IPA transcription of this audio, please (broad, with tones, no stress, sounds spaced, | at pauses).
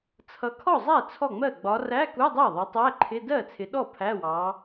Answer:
t͡sʰ ʌ˨˦ kʰ ɔ˥˩ zˤ æ˥˩ t͡sʰ ɔ˥˩ ŋ͡m ɜ˥˩ ɡ͡b ɒ˨˦ r æ˧˥˧ k u˧˥˧ dˤ æ˥˩ ðˤ ʌ˨˦ tˤ æ˧˥˧ ǃʰ ɪ˧˥˧ d ɜ˥˩ t͡sʰ ɪ˨˦ ɗ ɔ˥˩ pʰ æ˧˥˧ w ɑ˨˦